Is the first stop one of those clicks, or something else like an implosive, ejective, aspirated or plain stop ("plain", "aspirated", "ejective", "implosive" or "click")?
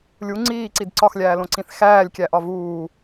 click